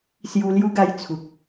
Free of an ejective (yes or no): yes